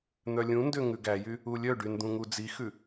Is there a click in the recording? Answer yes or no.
no